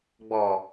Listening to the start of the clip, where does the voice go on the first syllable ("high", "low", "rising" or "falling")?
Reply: low